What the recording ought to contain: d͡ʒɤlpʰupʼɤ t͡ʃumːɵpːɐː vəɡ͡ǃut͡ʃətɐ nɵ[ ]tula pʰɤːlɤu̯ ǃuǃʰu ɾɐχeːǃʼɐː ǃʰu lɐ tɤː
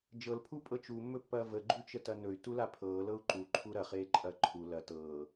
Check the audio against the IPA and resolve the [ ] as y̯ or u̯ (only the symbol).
y̯